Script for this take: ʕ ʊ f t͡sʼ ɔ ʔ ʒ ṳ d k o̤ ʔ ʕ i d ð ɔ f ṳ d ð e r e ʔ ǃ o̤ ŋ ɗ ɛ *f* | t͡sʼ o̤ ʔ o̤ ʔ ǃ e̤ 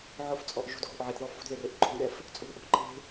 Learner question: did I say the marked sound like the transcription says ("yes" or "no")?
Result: yes